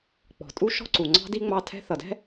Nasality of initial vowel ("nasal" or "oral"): oral